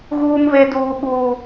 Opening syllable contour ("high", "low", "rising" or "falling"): high